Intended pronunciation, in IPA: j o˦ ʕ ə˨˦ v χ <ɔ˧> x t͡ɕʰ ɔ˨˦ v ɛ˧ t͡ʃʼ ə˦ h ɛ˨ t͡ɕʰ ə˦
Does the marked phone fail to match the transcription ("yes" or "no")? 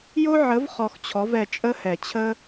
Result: no